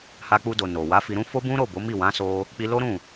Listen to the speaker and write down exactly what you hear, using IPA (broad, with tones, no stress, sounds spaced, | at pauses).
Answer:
h a˧ k͡p u˧ d o˨ n o˨ w a˨˦ f i˧ ɾ ũ˦ f o˦ b ũ˦ ɾ o˦˨ b o˨˦ m i˦˨ w ã˨˦ s o˧ | k͡p i˧ l o˦ ɾ ũ˦˨